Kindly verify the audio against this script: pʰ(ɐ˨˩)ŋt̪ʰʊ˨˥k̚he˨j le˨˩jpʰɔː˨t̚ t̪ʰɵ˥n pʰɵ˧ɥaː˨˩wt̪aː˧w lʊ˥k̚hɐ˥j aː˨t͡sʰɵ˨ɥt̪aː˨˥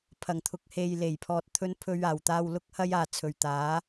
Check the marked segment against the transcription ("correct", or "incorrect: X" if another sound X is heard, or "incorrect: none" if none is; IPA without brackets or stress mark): correct